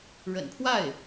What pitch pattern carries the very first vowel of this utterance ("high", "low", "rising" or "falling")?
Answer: low